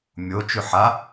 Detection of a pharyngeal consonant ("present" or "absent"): present